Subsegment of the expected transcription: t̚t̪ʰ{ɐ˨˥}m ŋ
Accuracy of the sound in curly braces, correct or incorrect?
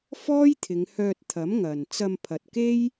correct